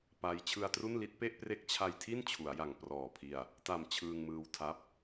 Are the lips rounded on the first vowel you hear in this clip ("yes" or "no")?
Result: no